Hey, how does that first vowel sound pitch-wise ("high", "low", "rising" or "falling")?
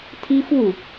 high